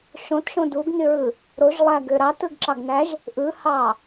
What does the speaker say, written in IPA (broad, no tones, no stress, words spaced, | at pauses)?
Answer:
ʃõtʃõ duɡnyɹɯ | ɾoʒlˠæɡø ɾɑtɯɡǁɑɡnæʒ | ʔɯhɑ